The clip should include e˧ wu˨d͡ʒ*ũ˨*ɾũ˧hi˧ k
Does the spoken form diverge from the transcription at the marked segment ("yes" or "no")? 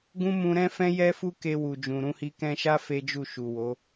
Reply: no